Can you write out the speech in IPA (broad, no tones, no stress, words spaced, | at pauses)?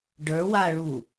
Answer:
ɖə˞waɭu